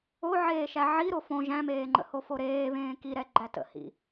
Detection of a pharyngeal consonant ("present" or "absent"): present